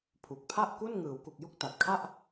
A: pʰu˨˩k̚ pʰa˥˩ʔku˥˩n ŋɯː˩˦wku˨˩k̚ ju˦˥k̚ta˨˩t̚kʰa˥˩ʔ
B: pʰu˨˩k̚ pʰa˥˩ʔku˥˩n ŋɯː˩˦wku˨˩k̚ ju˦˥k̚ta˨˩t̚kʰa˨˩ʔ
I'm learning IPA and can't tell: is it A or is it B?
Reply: A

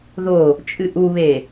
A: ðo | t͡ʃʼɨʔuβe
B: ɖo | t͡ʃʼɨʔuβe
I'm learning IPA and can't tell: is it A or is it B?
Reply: A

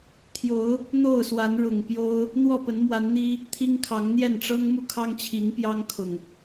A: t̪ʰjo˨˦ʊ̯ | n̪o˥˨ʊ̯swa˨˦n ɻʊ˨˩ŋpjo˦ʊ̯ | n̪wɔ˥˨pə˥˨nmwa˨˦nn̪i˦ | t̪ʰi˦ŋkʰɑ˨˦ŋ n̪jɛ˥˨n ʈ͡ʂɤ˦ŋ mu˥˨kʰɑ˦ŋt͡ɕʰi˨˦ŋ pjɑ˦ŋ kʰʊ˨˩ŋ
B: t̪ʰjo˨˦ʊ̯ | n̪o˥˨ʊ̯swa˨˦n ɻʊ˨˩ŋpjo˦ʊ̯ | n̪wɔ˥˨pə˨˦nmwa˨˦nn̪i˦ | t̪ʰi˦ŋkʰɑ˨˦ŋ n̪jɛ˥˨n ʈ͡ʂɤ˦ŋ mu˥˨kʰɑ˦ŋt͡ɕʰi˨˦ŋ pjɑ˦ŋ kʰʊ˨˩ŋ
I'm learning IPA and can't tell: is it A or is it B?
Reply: B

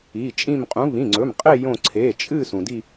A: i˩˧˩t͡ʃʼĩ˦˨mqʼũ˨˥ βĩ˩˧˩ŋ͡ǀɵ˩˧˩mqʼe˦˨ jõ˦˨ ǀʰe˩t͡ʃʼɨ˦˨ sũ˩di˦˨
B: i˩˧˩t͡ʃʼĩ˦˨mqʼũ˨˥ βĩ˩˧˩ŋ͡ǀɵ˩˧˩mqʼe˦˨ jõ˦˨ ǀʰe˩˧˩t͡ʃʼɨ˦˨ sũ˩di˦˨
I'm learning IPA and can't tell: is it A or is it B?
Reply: B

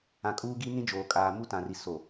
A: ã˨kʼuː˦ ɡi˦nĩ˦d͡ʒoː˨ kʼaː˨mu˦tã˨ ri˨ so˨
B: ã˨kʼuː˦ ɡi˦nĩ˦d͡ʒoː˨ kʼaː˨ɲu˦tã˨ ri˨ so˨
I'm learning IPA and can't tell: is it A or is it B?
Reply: A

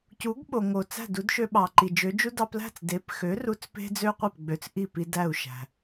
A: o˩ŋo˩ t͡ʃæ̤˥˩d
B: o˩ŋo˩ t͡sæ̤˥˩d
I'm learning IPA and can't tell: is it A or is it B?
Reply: B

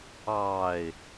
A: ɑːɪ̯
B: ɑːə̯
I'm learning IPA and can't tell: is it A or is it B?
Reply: A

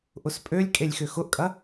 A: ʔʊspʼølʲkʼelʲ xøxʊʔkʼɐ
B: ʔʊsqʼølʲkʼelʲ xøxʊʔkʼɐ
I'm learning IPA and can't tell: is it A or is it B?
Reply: A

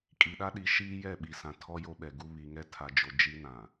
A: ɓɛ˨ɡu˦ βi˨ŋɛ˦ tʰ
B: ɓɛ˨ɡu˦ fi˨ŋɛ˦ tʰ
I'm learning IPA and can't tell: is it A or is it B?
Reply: A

